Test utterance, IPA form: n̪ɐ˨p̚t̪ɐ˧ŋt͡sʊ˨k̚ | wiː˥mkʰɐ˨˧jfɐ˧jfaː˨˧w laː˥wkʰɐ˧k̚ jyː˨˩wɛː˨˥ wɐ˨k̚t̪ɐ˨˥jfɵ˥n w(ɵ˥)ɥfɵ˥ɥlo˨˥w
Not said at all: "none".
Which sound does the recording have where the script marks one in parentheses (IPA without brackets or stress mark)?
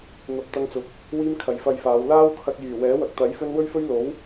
ɵ˥